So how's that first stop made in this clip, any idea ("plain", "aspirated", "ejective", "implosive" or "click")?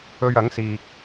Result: plain